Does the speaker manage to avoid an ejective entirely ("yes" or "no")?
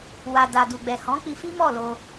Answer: yes